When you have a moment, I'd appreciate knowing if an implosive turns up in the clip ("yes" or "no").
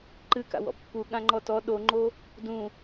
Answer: yes